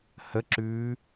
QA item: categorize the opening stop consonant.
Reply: click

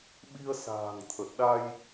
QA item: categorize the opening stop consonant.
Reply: implosive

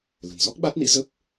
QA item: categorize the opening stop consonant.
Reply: plain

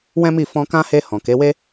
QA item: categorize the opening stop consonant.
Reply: plain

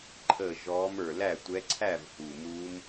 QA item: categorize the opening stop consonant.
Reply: click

